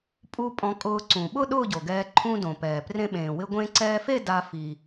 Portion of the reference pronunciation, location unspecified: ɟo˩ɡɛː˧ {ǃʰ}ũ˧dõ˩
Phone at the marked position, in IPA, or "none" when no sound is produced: ǃʰ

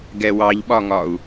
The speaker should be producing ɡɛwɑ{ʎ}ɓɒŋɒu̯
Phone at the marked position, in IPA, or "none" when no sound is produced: ʎ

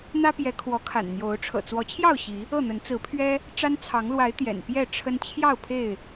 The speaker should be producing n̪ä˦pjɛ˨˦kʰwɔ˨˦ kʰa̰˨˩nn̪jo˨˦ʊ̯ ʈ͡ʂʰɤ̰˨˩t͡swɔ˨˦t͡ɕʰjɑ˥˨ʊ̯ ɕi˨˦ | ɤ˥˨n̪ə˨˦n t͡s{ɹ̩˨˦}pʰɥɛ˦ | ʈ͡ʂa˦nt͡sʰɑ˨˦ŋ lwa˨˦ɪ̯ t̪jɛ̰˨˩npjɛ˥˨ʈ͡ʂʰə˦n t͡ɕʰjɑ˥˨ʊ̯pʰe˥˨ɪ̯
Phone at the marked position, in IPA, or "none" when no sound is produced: ɹ̩˨˦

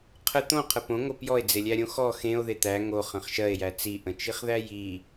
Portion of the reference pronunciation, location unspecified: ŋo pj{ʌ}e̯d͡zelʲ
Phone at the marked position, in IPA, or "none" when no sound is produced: ɔ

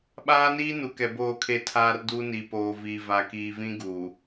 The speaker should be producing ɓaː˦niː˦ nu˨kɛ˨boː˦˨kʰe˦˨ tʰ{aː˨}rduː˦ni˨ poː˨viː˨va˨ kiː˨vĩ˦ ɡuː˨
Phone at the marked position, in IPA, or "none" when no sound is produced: aː˦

